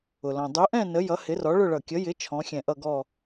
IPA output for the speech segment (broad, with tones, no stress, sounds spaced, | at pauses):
ʊ˩ l ɔ̃˩ dˤ u˨˥ ʔ ɛ̃˥˧ n ə˨˥ j ʌ˨˥ h ɪ˨˥ r ɔ˨˥ ɭ ʊ˥˧ ɭ ʌ˧˩ kʲ ə˨˥ j ɪ˨˥ t͡ʃʰ ɔ̃˨˥ xʲ ɛ̃˧˩ ʔ ʌ˥˧ ɡ ɔ˥˧